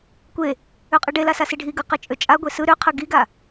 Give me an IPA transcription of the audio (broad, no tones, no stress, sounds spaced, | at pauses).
kʷ e | ø qʼ ɯ ɖ e l a s a s i ɖʱ i ɡ ɯ q e t͡ʃʼ ø t͡ʃʼ a ɡʷ e s ɯ ɾ ø qʰ ɯ ɡ i ɡ a